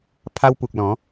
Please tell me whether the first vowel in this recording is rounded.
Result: no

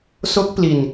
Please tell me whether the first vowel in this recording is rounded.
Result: yes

